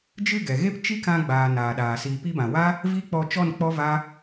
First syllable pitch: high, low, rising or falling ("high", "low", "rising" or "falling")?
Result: falling